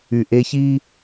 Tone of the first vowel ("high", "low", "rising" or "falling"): low